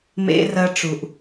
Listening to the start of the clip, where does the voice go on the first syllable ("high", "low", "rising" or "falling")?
high